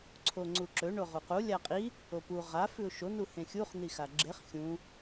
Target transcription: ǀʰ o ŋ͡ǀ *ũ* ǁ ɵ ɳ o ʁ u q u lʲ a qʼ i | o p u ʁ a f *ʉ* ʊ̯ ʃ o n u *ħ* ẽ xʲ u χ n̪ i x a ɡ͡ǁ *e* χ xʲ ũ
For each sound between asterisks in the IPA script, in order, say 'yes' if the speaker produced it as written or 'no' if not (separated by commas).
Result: no, yes, no, yes